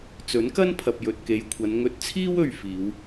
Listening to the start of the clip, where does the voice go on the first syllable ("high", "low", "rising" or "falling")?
rising